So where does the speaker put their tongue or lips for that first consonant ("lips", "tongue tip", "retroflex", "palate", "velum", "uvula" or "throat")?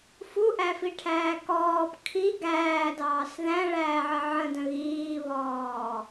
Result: lips